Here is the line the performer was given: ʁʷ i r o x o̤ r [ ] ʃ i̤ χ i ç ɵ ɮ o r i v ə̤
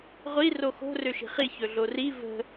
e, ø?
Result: ø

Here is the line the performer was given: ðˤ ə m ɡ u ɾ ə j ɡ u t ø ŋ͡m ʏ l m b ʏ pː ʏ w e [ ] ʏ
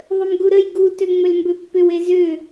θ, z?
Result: z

